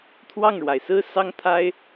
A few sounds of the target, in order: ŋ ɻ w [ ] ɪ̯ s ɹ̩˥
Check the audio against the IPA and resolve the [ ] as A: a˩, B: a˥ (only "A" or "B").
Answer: A